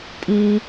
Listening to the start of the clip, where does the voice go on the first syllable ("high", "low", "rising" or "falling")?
high